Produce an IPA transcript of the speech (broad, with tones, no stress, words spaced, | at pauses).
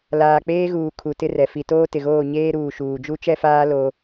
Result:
laː˨k͡peː˦ɣuː˨ kʰu˨tɪ˦ rɛ˨ fi˨toː˦tɪ˨ɣoː˦˨ ɲeː˦ɾuː˨ʃuː˨ d͡ʒu˦t͡ʃɛ˦faː˦ lo˦